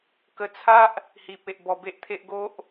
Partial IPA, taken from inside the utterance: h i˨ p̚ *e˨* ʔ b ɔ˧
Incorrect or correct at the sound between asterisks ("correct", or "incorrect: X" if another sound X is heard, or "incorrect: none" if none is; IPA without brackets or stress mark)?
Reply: correct